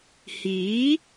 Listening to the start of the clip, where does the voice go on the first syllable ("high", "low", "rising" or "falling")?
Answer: rising